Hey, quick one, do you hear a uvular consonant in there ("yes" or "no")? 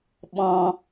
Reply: no